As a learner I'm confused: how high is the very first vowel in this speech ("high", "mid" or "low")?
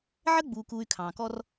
mid